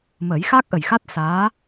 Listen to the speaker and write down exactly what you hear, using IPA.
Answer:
məː˨˩˦jxaː˦˥k̚ʔə˨˩jxa˦˥t̚ saː˧˥

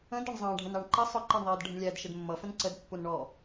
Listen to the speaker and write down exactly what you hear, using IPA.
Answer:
ə̃d ʌɳzˤɑ̃ɖʱənɑɳ ǃə sˤʊǃɜɳðˤɪːd ɖʱə̃ɳlʲæd ʃɪdmːʌfə̃n ǀədpːun ɳɔ

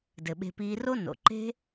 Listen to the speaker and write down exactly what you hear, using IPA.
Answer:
dɘ˩ɓe̤˨piː˨ ro˦ no̰˩ ǃe̤˥

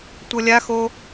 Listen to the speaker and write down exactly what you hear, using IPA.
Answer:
tʷɤlʲaxo

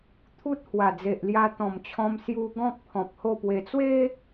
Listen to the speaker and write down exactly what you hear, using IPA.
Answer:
t̪ʰu˦t̚hwa˨˩d͡ze˨ʔlja˧ t̪ɔ̃˨˩mt͡ɕʰɔ̃˧m sju˦ ɡɔ̃˦k̚ pʰɔ̃˨p̚ho˥˧pwe˧ t͡swe˦

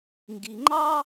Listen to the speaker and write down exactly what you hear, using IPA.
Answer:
ŋɡi˩ŋ͡ǃɑ˥

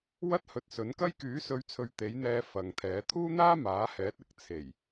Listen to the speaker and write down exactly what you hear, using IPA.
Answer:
wɐ˥t̚hɵ˨t̚ sɵ˨˥nkɐ˥j kyː˨˥sɵ˨˧ɥt͡sʰɵ˨ɥ t̪e˨˥jn̪ɛː˧ fɐ˨ŋt̪ʰɛː˨˥ t̪ʰuː˥n̪aː˥maː˨˥hɛː˨˥t̚ ɪ˨k̚ t͡sʰe˨˩j

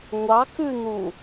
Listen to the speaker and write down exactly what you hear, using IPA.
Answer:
ŋʷɑkʉn̪u

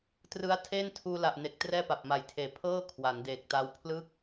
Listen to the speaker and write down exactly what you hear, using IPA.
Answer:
trɯ˦˥a̯ tʰeː˥˩ntʰuː˧la˨˩ʔne˨˩k̚ trɛː˥˩pa˨˩p̚ma˨˩jtʰeː˨˩ pʰɤː˥˩ kʰwa˩˦ndeː˨˩k̚ta˦˥w pʰlɯ˥˩k̚

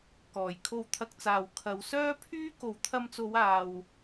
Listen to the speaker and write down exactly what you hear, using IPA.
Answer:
kɔː˨˩jkʰo˧wt̪ʰɐ˧k̚t͡saː˨w kʰɐ˨˧w sœː˥pʰyː˥ ko˨wt̪ʰɐ˧mt͡so˨˧waː˨w

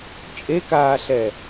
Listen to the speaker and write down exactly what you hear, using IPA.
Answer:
t͡ʃʼekaːɬɛ

